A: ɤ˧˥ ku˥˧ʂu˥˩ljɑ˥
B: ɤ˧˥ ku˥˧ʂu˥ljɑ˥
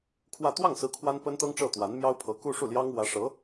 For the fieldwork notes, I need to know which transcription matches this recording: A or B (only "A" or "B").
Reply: A